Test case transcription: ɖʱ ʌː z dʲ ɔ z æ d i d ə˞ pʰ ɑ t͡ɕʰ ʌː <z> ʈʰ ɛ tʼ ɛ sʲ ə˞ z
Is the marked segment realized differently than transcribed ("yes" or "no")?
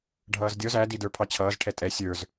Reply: no